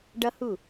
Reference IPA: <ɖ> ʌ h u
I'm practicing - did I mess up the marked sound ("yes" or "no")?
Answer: no